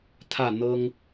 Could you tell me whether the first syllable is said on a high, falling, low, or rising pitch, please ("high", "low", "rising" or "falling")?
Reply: falling